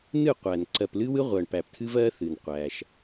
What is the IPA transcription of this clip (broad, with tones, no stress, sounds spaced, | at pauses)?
n ɨ˦˨ qʷ æ˨ n ǀ ɜ˨ p l ɨ˦ w ɨ˦ ʁʷ ɜ˨ ɳ p æ˨ p tʰ ɨ˦ v ɜ˦ θ ɨ˨ n qʷ æ˦ ʃ